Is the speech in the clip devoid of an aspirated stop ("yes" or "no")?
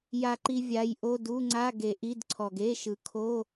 no